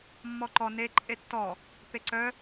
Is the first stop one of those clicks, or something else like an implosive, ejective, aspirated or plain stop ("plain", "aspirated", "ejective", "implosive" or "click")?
click